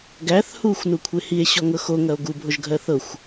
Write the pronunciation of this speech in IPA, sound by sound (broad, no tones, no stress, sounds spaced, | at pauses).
ɡ æ θ h u xʷ n u kʷʰ e h i e̯ ɕ ɔ ŋ ɤ x o ŋ ɐ o̯ ɡ u bʱ o ʒ ɡʱ ɜ θ ɤ xʷ